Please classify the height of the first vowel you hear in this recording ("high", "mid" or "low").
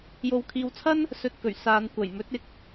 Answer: mid